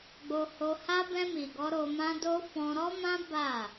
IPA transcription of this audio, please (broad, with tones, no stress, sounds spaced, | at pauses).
ɡ͡b o˧ h o˧ h a˦ b ɛ̃˧ m i˨ ɡ ɔ˧ ɾ o˧ m ã˦ d o˦ f ɔ̃˧ ɾ ɔ˦ m ã˦ b a˦˨